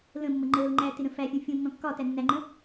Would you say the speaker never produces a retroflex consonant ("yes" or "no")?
yes